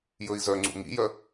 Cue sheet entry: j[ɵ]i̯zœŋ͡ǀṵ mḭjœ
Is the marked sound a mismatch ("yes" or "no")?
no